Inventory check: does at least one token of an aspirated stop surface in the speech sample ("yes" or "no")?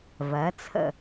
yes